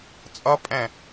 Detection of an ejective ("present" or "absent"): present